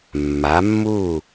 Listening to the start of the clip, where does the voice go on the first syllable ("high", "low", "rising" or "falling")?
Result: rising